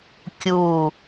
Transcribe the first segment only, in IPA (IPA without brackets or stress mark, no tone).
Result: kʲ